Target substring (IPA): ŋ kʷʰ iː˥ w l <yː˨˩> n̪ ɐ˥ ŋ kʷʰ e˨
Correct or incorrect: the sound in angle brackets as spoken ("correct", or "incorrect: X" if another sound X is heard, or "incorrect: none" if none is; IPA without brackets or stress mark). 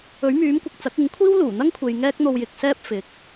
incorrect: uː˨˩